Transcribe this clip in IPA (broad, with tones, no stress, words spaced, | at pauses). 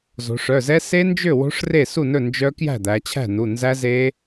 zo̤˩˧ʂœ˩˧˩zɛ˦˥ se˦˥nd͡ʒø˥˩ wo̤˦˥ʂre˥˩ su˥˩nɵ˥˩ nd͡ʒœ˦˥ kjæ̤˥˩d̪æ˩˧t͡ɕʰæ̤˥˩nu˩˧˩ nzæ˦˥ze˦˥